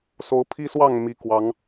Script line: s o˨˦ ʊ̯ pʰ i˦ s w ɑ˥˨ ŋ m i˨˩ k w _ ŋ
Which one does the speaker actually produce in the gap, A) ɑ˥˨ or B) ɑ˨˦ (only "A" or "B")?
B